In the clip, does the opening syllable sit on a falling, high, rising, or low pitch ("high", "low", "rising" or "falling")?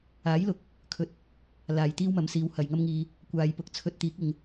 rising